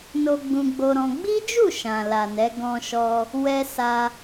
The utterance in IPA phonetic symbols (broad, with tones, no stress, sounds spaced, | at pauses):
n o˧ ɡ͡b ũ˧ ɡ͡b o˧ ɾ ɔ̃˧ ɡ͡b i˦ d͡ʒ u˦˨ ʃ ã˨ l a˨ n ɛ˨˦ ɡ ɔ̃˧ ʃ ɔ˧ | w ɛ˦ s a˧